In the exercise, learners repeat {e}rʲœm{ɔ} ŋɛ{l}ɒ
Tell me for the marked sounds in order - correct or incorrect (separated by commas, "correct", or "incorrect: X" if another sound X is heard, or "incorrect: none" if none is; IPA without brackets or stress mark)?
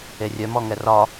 correct, correct, incorrect: r